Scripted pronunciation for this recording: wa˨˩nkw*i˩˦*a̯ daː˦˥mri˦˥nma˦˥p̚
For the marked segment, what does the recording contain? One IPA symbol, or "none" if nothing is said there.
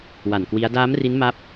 i˦˥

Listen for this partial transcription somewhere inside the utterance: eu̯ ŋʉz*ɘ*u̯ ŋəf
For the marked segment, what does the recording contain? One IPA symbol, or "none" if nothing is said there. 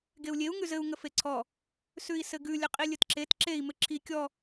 ɘ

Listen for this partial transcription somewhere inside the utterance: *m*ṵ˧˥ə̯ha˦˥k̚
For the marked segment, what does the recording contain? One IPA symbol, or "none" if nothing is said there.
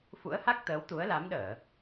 f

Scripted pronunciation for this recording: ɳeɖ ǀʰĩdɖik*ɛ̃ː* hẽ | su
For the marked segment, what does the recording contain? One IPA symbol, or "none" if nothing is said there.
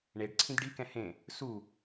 ɛ̃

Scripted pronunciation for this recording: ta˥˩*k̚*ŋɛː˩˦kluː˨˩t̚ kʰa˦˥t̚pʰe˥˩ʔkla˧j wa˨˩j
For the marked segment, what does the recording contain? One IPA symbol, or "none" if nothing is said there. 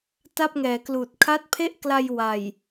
p̚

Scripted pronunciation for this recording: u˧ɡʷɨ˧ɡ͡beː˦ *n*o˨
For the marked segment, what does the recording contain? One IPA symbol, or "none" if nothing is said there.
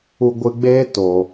t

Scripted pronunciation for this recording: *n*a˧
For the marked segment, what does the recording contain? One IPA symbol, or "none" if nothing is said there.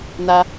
n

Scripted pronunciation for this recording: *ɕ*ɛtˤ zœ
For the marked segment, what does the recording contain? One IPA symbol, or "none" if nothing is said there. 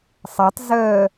sˤ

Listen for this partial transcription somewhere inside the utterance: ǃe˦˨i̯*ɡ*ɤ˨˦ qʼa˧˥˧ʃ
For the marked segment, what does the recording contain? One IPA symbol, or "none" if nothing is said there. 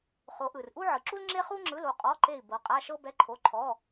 b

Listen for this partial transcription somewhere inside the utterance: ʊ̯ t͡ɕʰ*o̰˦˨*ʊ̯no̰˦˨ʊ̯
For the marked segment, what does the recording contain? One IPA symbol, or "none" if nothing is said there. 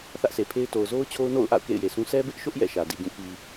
o˦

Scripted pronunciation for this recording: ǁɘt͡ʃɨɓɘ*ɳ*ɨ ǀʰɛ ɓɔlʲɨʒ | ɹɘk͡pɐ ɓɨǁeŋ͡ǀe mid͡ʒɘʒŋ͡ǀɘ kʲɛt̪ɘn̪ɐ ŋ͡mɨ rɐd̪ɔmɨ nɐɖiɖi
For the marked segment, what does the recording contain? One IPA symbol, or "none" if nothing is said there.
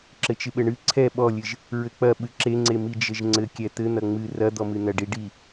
ɳ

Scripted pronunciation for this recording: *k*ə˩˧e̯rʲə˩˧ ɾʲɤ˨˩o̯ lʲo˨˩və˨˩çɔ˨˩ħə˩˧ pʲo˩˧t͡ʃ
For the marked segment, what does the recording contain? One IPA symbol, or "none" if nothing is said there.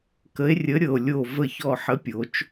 k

